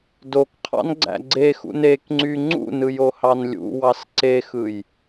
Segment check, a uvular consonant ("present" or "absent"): present